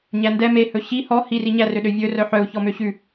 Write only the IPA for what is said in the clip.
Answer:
ɲ æ n d ɛ m e h ɵ ɕ i h ɔ h i r i ɲ æ r ø ɗ ø vʲ ɵ r œ ħ œ u̯ ç ɔ m ø ɕ ʉ

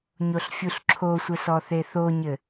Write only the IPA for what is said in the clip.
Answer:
ɲ o ɬ fʲ u ɬ ǁʰ o sʷ ɘ s ɔ θ e θ o ɲ ɘ

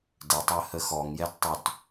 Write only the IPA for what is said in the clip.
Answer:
d ɘ tˤ ɜ h ə x ɔ ŋ j ɛ d tˤ ʉ t

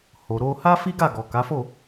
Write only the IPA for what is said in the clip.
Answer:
h o˨ ɾ o˧ h a˦ f i˦ ɡ a˦˨ ɡ ɔ˨ k a˨˦ f o˦˨

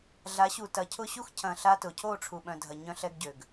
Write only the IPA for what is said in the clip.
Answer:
ɮ a˨˦ ɕ u˨ t ɐ˨ cʰ ʊ˦ ɕ u˦ x cʰ ɐ̃˨ ɬ a˦ t ʊ˨ cʰ o˦˨ ʈ͡ʂʰ u˨ ɓ œ̃˨ dʱ ɐ˨ ɲ œ̃˦ ɬ ɛ˦ ɡ ɟ ø˨ ɡ

